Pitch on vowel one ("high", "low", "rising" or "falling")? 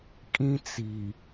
high